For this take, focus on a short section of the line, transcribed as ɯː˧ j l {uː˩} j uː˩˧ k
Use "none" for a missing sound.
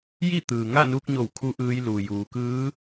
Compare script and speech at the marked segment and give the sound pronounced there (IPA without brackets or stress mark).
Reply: uː˩